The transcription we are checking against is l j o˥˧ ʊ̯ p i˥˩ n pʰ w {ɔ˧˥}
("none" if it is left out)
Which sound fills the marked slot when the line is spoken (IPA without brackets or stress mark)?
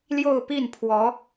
ɔ˧˥